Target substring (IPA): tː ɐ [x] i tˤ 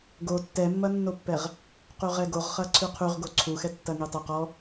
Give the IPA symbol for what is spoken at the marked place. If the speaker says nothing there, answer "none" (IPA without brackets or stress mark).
ŋ